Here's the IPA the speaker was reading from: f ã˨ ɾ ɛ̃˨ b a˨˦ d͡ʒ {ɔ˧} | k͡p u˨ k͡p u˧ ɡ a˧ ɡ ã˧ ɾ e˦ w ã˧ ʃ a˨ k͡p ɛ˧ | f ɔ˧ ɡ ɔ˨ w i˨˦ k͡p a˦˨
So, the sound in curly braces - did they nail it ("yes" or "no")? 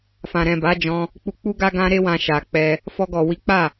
no